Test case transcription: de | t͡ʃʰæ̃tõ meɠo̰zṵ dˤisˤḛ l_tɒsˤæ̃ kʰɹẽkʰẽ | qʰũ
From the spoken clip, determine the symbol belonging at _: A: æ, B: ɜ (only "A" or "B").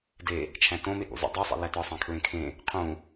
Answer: A